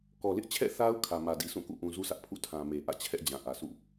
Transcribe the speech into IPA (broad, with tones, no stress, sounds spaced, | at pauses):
k ɔ˨ l ɪ˦ ʔ t͡ɕʰ ɛ̰˦˨ θ a˦ ʊ̯ kʰ ä˨ m ä˨ d i˨ s ũ˦˨ k ṵ˦˨ ʔ ũ˨ z u˦ sʰ ä˦ ʔ pʰ ṵ˦˨ tʰ ã˨ m e˨ ʔ ä̰˦˨ t͡ɕʰ ɛ˦ ʔ d͡ʑ ã˨ ʔ ä˨ s ṵ˦˨